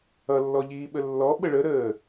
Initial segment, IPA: ʌ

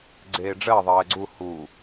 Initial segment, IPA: ɡ͡ǀ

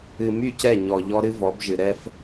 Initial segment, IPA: ɨ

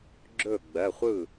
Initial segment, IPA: ɡ͡ǁ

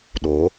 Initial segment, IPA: ɗ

